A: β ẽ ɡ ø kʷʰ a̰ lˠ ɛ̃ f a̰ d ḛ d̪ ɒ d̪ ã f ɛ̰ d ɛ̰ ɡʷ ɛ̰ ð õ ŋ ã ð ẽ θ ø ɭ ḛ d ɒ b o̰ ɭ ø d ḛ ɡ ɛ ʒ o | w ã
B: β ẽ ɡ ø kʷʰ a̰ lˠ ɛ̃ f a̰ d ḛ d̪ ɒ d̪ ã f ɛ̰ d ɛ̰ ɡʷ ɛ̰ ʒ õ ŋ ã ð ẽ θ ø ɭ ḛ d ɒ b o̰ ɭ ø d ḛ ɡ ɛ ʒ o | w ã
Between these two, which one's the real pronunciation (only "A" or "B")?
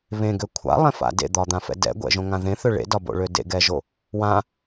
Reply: B